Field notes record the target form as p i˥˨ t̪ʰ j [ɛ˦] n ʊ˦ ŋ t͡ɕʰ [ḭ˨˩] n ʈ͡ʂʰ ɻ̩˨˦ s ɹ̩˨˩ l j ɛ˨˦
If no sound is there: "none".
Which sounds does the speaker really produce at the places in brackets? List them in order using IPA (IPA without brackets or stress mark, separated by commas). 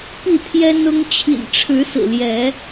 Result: ɛ˦, ḭ˨˩